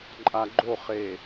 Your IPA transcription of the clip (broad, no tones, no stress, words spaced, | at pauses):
ǃʼaɡ͡ǃoχe